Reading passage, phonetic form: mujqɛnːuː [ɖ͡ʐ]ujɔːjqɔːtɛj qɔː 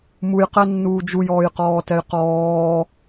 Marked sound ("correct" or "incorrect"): incorrect